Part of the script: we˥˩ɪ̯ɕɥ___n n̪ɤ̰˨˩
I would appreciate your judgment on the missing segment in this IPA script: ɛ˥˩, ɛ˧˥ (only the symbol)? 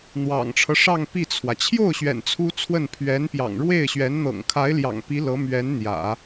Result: ɛ˧˥